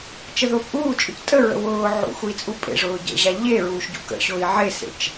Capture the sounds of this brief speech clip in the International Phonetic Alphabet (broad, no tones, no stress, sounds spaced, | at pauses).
t͡ʃ ə ð ʊː p ʔ uː t͡ʃʼ ʊ c tʼ ə ɹ ə̰ w ʊː ʕ ṵ x u i̯ t͡sʼ u pʼ ḛ ʐ ʊː ɟ ə̰ ʑ a ʎ e ɹ uː ʃ ɟ ṵ k ə̰ ɕ ʊː i̯ ʕ e s ḛ t͡ʃ